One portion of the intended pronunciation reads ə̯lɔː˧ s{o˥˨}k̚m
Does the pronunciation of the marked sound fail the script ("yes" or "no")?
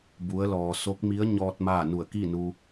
yes